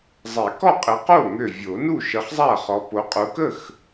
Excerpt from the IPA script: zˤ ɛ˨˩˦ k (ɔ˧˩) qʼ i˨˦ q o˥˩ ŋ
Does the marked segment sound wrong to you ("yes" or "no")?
yes